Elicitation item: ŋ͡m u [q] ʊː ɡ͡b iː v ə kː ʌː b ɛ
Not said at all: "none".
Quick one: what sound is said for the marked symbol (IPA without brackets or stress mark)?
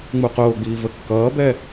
q